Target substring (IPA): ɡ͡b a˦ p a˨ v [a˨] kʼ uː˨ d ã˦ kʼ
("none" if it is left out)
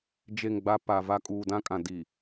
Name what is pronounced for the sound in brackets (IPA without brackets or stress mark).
a˦